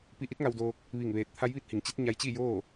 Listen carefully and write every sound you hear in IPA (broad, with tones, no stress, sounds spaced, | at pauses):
p i˧ ʔ i˧˥ t̚ ŋ a˧ w d oː˧ k̚ | ʋ i˧˩ ŋ ʋ eː˧˩ t̚ t̪ʰ a˧˥ j ʋ i˧˥ t̚ h i˩ ŋ t͡ɕ i˧˥ t̚ ɲ a˧ j t͡ɕ i˥˨ j oː˥˨